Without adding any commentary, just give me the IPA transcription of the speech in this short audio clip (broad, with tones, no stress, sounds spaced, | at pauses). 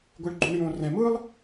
ɡʷ ɯ˩ ɭ ɡ͡ǃ u˩ ɳ j õ˩ r ɛ̃˩ m ɯː˥ lˠ